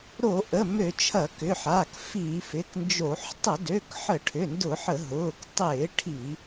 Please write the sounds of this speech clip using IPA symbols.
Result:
ɾ o˧˩˧ ʔ ə˩˧˩ m ø˧˩˧ t͡ʃʰ ɐ˧˩˧ k ʏ˩˧˩ ħ aː˩˧˩ k f i˧˩˧ f ɪ˩˧˩ k n d͡ʒ o˧˩˧ ħ tˤ ə˧˩˧ d ø˩˧˩ k ħ ə˧˩˧ ʈʰ ʏ˩˧˩ n d ʊ˧˩˧ ħ ə˧˩˧ ɦ ʊː˩˧˩ k tˤ ɪː˧˩˧ ʈʰ i˧˩˧

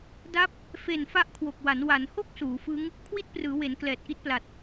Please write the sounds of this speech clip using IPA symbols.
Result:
d a˦˥ p̚ | f e˨˩ n f a˦˥ ʔ kʰ w o˨˩ k̚ w a˩˦ n w a˩˦ n h o˥˩ k̚ s uː˩˦ f ɯ˦˥ ŋ | kʰ w i˥˩ t̚ p r ɯː˩˦ w e˩˦ n k l ɛː˨˩ t̚ ʔ i˥˩ t̚ p l a˨˩ t̚

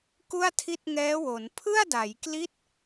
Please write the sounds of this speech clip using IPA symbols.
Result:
k u˥˩ a̯ tʰ i˥˩ t̚ ŋ ɛː˦˥ w o˩˦ n pʰ ɯ˥˩ a̯ d a˩˦ j k l i˦˥ t̚

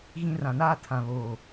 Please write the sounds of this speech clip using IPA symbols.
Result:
ɣ ĩ˦ r ã˨ n aː˦ tʰ ã˨ β oː˨

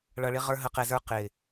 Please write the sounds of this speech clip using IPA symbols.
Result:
ɭ ʌ˧ ɭ ɪ˦ ʁ ə˞˦ ɦ ə˧ q ɛ˧ z ə˞˦ q ɪ˨

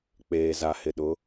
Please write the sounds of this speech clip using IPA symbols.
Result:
k͡p eː˨ z a˨ h ɪ˨ ɗ ʊ˨˦

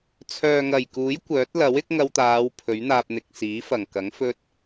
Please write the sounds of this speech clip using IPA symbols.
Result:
t͡sʰ œː˨ ŋ ɐ˨˩ j k uː˨˥ j kʷ œː˨˥ t̚ l ɐ˨˥ w ɪ˥ k̚ ŋ ɐ˧ w t̪ aː˨˧ w pʰ ɵ˨˥ ɥ n̪ aː˧ p̚ n̪ ɪ˨ k̚ s iː˨˥ f ɐ˨˩ ŋ k ɐ˨˥ ŋ f ɵ˥ t̚

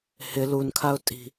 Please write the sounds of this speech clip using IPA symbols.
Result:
h ɪ l u n kʰ a ʊ̯ tʼ i̤

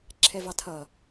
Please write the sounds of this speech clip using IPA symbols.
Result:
ǁʰ ɛ v ɑ tʰ ʌ

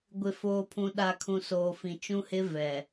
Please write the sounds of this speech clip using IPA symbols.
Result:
ɡʷ ɪ˨ f oː˨ pʰ ũ˨ ɗ a˨ kʰ ũ˨ s oː˨ f ĩ˨ t͡ʃ ũ˦ h ɪ˦ v ɛ˨

